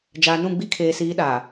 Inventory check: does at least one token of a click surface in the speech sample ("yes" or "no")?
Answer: no